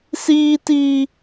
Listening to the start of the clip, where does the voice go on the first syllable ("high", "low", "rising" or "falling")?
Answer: high